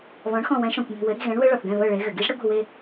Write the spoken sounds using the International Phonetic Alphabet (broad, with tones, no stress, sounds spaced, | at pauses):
β ɔ̃˩˥ ɳ x ɔ̃˧˩ w ɛ̃˩˥ ʃ ɔ̃˩ kʷ m e̤˧˩ w ɘ˩˥ ɾ i̤˥˩ ɣ ɛ̃˩˥ ɳ w ɘ˦˥ ɭ ɔ˩ θ ɡ ɛ̃˥˩ β ɤ˥˩ ɭ e˩˥ ɣ ɘ˩ ɡ i˦˥ ʒ ɽ ɘ˦˥ ɡʷ ɛ̤˥˩ w e˥˧